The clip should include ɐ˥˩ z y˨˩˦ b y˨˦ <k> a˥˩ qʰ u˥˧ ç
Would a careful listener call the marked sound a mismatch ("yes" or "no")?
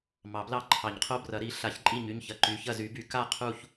no